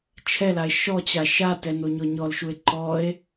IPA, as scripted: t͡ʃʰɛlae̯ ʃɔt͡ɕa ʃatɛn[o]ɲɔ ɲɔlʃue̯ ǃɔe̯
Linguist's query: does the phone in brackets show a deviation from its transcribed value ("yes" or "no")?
no